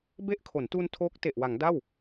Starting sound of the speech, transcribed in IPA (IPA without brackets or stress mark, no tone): b